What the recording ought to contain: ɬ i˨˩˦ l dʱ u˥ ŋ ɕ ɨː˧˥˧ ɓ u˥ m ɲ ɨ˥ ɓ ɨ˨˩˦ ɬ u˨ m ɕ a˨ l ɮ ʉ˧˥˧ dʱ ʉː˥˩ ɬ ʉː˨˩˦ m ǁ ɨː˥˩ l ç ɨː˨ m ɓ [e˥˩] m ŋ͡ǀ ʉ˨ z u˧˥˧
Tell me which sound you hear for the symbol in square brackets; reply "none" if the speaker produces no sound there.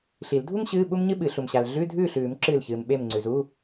e˥˩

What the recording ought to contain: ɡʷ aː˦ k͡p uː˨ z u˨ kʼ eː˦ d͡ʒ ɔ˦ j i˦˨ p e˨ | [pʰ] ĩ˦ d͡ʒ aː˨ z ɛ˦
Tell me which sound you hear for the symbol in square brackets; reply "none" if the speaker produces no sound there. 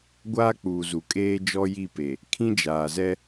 kʰ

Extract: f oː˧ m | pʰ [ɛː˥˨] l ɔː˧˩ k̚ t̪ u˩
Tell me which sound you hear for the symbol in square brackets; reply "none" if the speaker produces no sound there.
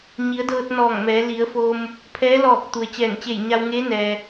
ɛː˧˥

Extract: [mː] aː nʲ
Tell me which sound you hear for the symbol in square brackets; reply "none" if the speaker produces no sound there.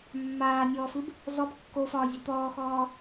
mː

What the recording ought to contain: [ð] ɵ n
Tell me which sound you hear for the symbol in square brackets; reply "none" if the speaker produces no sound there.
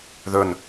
ð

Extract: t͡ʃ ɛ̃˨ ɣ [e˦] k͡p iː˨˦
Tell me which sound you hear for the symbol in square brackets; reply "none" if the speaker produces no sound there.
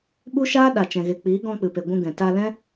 e˨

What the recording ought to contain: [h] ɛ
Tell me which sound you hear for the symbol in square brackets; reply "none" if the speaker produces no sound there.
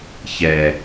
ç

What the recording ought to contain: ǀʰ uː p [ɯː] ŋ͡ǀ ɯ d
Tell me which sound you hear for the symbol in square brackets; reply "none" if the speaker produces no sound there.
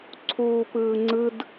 ɯː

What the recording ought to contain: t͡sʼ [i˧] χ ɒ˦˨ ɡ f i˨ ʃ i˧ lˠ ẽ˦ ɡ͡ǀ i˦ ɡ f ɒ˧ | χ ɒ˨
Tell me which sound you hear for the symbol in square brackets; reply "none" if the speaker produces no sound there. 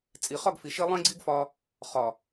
i˨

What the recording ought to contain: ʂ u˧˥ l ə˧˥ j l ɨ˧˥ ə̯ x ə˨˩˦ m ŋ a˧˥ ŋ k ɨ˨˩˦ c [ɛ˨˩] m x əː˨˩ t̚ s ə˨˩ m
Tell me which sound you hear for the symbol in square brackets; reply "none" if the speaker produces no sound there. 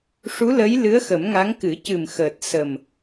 ɨ˨˩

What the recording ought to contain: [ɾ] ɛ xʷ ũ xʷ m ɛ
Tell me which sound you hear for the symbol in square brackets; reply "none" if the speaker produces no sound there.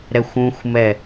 ɾ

